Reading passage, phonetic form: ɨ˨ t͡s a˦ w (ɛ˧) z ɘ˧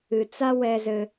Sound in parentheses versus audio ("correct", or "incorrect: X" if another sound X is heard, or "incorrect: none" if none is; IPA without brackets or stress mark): correct